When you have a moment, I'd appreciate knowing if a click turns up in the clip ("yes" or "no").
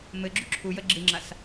yes